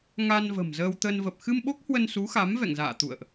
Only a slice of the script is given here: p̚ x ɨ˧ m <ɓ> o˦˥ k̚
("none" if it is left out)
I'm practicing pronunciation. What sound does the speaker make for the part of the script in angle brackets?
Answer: ɓ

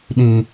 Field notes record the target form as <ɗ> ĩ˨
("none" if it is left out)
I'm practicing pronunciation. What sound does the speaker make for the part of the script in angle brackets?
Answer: ɗ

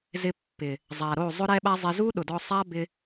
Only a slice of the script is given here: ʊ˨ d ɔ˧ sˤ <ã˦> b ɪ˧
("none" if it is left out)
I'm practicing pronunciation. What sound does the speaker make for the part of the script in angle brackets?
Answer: a˦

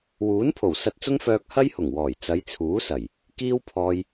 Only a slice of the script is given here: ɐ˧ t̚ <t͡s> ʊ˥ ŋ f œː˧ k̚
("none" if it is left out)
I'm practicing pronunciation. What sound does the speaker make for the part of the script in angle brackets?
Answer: t͡s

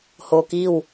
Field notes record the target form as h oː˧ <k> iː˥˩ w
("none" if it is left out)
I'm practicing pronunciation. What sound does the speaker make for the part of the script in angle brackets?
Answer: k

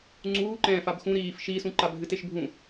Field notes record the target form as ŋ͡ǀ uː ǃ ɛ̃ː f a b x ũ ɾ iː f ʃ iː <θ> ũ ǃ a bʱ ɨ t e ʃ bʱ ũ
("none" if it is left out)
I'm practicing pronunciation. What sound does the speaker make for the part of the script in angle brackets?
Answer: s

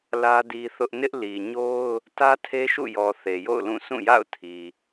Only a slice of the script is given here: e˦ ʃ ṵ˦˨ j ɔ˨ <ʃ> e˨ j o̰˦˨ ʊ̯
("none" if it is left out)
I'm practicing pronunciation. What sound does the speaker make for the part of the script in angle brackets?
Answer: θ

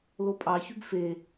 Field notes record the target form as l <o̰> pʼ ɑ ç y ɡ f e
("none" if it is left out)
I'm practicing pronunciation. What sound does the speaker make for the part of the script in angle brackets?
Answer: o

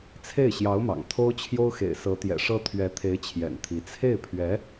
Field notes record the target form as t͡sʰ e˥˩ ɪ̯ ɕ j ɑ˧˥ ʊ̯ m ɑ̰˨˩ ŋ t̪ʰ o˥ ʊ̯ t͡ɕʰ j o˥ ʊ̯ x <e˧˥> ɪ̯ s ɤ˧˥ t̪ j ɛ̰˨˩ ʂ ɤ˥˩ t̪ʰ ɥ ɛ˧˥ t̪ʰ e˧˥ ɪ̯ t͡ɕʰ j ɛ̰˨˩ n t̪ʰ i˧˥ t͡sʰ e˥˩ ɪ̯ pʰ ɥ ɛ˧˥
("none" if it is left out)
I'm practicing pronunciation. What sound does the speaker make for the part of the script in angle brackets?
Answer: ḛ˨˩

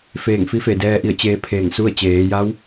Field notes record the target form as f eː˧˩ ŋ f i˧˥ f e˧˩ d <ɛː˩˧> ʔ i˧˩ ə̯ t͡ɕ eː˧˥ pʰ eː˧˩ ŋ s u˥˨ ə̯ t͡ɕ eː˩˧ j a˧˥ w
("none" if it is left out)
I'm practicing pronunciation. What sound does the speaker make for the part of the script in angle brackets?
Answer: ɛː˧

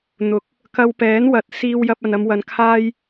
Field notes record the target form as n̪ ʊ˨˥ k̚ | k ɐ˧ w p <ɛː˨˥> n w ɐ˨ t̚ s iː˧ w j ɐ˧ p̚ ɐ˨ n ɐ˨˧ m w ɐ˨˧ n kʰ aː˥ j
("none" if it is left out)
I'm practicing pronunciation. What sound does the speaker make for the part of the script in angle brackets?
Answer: ɛː˨˥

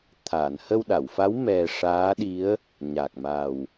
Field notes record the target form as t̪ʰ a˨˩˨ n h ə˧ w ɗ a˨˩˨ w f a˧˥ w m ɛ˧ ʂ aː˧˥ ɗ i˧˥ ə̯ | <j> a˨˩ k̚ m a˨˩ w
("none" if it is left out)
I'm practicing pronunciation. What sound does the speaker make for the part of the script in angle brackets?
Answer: ɲ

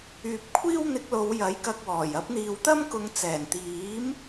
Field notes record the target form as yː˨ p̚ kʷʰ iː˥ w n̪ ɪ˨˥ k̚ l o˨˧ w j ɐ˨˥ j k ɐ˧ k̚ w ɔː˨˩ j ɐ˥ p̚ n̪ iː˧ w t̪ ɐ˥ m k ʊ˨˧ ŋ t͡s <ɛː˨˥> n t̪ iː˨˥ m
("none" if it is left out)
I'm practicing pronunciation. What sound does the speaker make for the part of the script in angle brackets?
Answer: ɛː˨˩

